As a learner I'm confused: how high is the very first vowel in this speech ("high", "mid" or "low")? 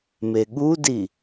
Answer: mid